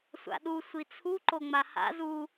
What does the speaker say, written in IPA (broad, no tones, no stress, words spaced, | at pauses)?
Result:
sʷa̰ɗu sʷit͡sʰu ǃoŋ͡maha̰ zu